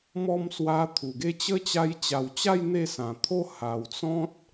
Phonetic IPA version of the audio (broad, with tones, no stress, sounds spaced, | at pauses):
m ɔ˧ m s w a˧ t̪ʰ u˨˩ ɡ e˧ t͡ɕ ə˦ t͡ɕ a˧ j t͡ɕ a˨˩ w t͡ɕ a˥˧ j n̪ e˥˧ s ã˨˩ t̪ʰ o˦ h a˨˩ w t͡s ɔ̃˦ t̚